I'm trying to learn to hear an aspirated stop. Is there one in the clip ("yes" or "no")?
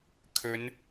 yes